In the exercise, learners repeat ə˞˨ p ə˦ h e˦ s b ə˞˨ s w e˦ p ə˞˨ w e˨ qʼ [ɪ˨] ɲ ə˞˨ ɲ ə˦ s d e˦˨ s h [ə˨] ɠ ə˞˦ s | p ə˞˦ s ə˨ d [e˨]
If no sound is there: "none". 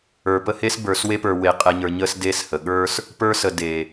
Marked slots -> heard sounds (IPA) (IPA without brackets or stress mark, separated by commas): ɛ˨, ə˨, e˨